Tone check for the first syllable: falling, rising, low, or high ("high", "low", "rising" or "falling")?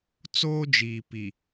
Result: high